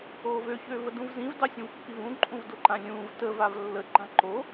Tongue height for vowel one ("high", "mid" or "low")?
mid